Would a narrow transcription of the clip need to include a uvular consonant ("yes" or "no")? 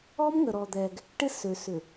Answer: no